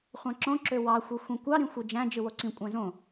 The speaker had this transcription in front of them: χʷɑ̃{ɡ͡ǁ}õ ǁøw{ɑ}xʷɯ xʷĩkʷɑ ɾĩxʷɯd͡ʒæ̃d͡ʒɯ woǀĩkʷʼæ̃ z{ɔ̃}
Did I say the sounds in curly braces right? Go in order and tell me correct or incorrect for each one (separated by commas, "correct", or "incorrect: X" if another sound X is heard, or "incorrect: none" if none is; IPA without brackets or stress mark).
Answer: incorrect: ǁ, correct, incorrect: õ